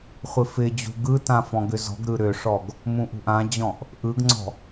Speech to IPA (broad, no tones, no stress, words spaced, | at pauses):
χʷɪfɪd͡ʑṳ ɡɯtã fɔ̃ɡʏzɔ̤ɡɾɯ ɾʏʂɔɡ | mũʔṳʔãd͡ʑɔ̃ʔ | ʔɯɡŋ͡ǀɔ̤